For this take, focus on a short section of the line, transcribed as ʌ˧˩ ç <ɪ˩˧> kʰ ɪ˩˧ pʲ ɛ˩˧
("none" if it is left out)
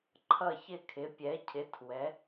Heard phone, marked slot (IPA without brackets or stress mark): ɪ˧˩